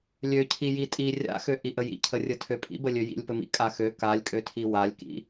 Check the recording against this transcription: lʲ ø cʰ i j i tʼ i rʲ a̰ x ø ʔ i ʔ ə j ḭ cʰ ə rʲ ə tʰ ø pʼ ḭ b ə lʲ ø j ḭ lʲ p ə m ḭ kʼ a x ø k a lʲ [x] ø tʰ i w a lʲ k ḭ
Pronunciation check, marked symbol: incorrect: kʼ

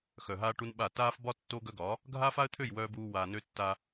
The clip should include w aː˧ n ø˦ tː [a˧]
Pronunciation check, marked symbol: correct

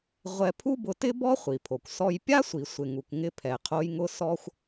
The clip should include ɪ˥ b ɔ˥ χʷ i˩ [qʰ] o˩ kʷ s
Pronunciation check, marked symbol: incorrect: pʰ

